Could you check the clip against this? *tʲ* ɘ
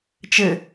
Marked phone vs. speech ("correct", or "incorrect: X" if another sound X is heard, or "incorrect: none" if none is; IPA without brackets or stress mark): incorrect: t͡ʃ